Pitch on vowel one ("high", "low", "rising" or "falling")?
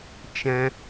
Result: high